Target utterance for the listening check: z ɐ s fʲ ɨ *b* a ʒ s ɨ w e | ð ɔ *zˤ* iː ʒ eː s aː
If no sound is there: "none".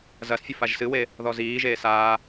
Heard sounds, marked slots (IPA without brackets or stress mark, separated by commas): f, z